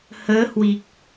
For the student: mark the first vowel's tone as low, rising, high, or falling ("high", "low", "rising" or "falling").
rising